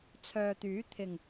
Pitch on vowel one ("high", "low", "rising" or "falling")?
low